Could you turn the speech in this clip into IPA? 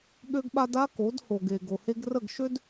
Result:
ɠ ø˦ ɡ ɓ a˦ d a˦ k o˨˦ d h o˨ ɡ e˨ ɡ o˨ h e˦ ɡ r ə˦˨ ɡ ʃ ø˦ d

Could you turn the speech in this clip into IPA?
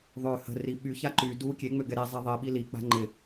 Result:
ðˤ ø h ə̤ r i ɓ y ç a ǃ y d u kʲ e ŋ͡m ø ɡ ɛ ɾ i zˤ ɛ ðˤ i ɓ i l i k͡p a̤ ŋ͡ǃ ɪ

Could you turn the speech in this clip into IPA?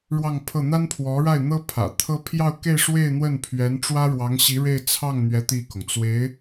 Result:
ɻ w ɑ˥˧ ŋ pʰ ɤ˥˩ n̪ a˥ n pʰ w ɔ˧˥ ɻ a˥˩ ɪ̯ n̪ ɤ˥ pʰ ä̰˨˩ t̪ʰ ɤ˥ pʰ j ɑ˥˧ ʊ̯ k e˥˧ ɪ̯ ʂ w e˥˧ ɪ̯ n̪ w ə˥˩ n pʰ ɥ ɛ˧˥ n ʈ͡ʂ w ä˥ ɻ w ɑ˧˥ ŋ ɕ i˧˥ ɻ e˥˧ ɪ̯ t͡sʰ ɑ˥˩ ŋ n̪ ɥ ɛ˧˥ t̪ i˥˩ k ʊ˩ ŋ t͡s w e˧˥ ɪ̯

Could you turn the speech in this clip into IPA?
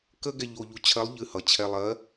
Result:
k ə˥ ɡ ɛ˧ ʎ o˧ ʎ u˧ t͡ɕʰ ɜ˧˥ lˠ ʎ ɨ˧ h ʌ˩ t͡ɕʰ ɛ˧ lˠ ɜ˧˥

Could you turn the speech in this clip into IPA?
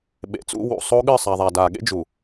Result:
ɓ ḛ˨ t͡s ṵ˦ w ṵ˨ sˤ o˦ ɠ ɨ˦˨ sˤ a˨ ðˤ a˨ d a˨ ɠ ḛ˦ d͡ʒ u˨

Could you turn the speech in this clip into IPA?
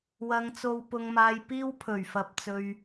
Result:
w ɐ˨ ŋ t͡s o˨ w p ʊ˨ ŋ m aː˨ j p iː˧ w pʰ ɵ˨˩ ɥ f ɐ˨ p̚ t͡s ɵ˨ ɥ

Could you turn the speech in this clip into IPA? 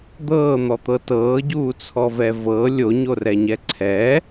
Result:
d̪ ɤː n̪ ɔ t̪ ɤ t ɤː ɟ uː t͡sʰ ɔ v ɛ v ɤ lʲ o ɲ o r ɛ ɲ ɛ ǀʰ ɛ

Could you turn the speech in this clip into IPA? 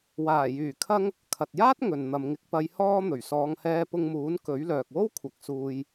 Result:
w aː˨˩ j yː˨˩ kʰ ɐ˧ ŋ | kʰ ɐ˨ t̚ j aː˥ t̚ ŋ ɵ˨ n n̪ ɐ˨˧ m ŋ ɪ˨˥ k̚ p ɐ˨˧ j h ɔː˧ n̪ ɵ˨˩ ɥ s ɔː˨˧ ŋ h ɛː˧ p ʊ˧ ŋ m uː˨˥ n k ɵ˨˥ ɥ l œː˨ k̚ w o˥ w kʷʰ ɐ˨˥ k̚ s uː˧ j

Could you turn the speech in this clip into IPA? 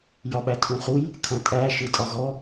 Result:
j ɒ ɓ æ tʰ ũ χ u j | kʰ ɐ̃ tʼ æ ʃ ɯ tʼ ɒ ɣ ɔ

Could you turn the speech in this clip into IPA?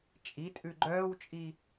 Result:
t͡ʃʼ i tʼ ʉ ɡ͡ǃ œː w t͡ʃʼ i

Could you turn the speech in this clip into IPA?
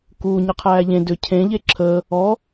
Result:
k u ɲ ɛ qʰ æː ʎ ẽ d ʏ cʰ ẽ ʎ e ǁʰ əː | ɔ

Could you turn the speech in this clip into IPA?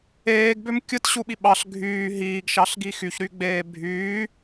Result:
eː ɡ b ø m kʲ ɯ t ɕ u ɓ i ɓ ɑ ɬ ɡʱ yː ɦ iː ɡ ʃ ɑ ɬ ɡ i x y ç ɾ y ɡ͡b eː bʱ yː

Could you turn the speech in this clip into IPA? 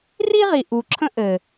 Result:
r i˦ ʁ i˨ ʔ u˨ ǁʰ ə̃˦ ʔ ɘ˨

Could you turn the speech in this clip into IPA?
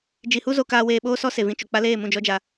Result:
d͡ʒ i˨ h u˦ z o˧ k aː˧ w eː˧ ɓ oː˦ s ɔ˦ s e˨ v ĩ˧ t͡ʃ o˨ k͡p a˦ l eː˦˨ m ũ˦˨ d͡ʒ ɔ˧ d͡ʒ a˨

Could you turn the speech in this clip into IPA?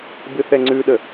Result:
b ɨ θ ɛ ŋ͡ǀ ʉ ɗ ə

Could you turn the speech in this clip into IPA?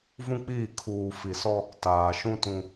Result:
v ũ˦ k͡p iː˦˨ kʰ uː˨ f i˨ s ɔ˦ | t aː˨ ʃ ũ˦ t ũ˦

